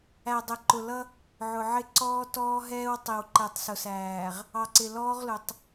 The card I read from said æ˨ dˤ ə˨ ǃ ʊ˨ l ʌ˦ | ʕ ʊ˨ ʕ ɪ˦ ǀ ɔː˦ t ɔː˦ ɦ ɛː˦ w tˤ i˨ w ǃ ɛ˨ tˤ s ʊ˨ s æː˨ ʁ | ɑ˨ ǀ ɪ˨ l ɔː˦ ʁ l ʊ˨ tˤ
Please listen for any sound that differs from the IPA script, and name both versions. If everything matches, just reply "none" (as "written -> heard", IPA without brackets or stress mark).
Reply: none